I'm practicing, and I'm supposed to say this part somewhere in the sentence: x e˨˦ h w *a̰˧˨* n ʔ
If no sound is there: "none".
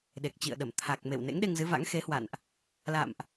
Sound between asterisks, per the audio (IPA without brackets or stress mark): a̰˧˨